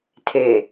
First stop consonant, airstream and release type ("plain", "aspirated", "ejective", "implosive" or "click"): aspirated